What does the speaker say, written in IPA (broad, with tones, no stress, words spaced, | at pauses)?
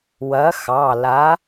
wɐ˨˥xɑ˩˧˩ la˨˥